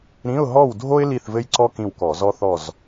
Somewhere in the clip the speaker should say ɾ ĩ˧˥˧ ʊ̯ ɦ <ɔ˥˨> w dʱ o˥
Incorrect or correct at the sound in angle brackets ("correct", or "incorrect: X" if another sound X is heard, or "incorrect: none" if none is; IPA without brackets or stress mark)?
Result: correct